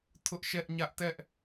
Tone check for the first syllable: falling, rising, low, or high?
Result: high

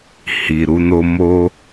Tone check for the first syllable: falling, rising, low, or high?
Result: low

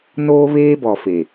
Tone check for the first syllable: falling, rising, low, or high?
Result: high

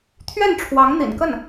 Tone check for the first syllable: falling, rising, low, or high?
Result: falling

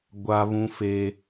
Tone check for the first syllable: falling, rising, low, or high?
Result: high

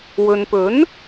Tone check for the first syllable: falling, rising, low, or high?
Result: low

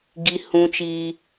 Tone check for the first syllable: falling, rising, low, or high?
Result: high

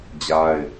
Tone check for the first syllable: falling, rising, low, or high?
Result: high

